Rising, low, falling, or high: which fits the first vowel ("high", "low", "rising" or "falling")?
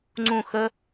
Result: falling